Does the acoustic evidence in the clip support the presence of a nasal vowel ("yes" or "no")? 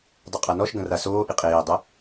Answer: yes